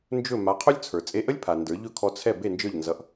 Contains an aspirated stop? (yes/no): yes